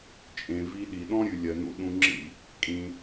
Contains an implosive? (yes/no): yes